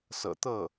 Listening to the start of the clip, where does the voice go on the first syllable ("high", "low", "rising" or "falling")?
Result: low